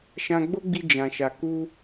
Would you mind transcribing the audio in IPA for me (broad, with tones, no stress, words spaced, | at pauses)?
ʃã˧ɡ͡bo˦ɡ͡bi˧ d͡ʒã˨ʃa˨ ku˧